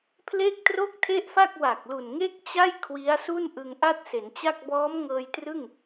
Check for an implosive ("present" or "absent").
absent